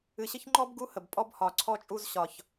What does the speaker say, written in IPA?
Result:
ɨ˨ ɕ ə˦ ç ŋ͡ǃ ɔ˦ b ɡ u˦ h ə˨ b pʼ ɔ˦ b h ɒ˨ ǀʰ ɔ˦ t͡ʃʼ u˦ z ɕ ɒ˨ ç

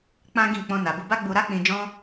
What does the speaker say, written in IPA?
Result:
k͡p ã˦ ɡ ĩ˦˨ k͡p ɔ̃˧ n a˨ b u˧ b a˦ ɡ͡b u˧ ɾ a˦ k͡p ĩ˧ d͡ʒ ɔ̃˦

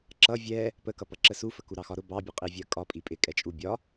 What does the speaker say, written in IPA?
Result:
ǁ ʌ vʲ ɛ | p ə k ʌ p ʌ ǁ ə s u f ə k u ɾ ɑ x ɒ ɾ ʊ b ɑ bʲ ə qʼ i vʲ ɜ kʼ ɒ pʼ i pʼ ɪ kʼ ɛ t͡ʃʼ u bʲ ɒ

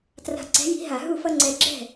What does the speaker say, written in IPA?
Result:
t r a̤˧˩ ǀ ɛ̤˨˥ j i̤˨˥ ɦ a˧˩˧ ɦ u˥˩ f ʌ˦ ŋ͡ǀ ɛ˧˩ ɡ͡ǁ ɛ̤˥˩

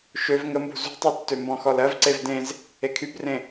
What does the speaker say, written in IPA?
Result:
ʃ ø v ŋ ə m b ṳ z ṳ tˤ e tː ø m b ɔ̃ x ɔ l ɜ v ǀ e v d ẽ z | e kʰ y b r ẽ

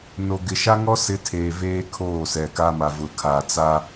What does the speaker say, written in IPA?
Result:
n o˨ ɡ ɪ˨ ʃ a˦ ŋ ɔ˦ s ɪ˦ tʰ eː˨ v eː˦ kʰ oː˦˨ s ɛ˨ k a˦ m a˨ v ʊ˨ kʰ aː˨ t͡s a˦

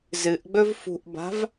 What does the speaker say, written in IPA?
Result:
z ɨ ʔ ɡ͡b ɵ v f ṳ ʔ b a̤ v

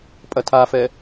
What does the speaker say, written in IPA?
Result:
pʼ ɐ tʰ a f ɛ

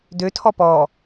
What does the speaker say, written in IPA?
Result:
d ø tʰ ɔ p ɔ

